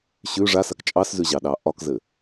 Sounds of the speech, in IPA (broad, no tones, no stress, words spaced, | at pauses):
ɕʉ ʐasak t͡ʃʼɑszʉʑɑɗɑ ʔɒkzɘ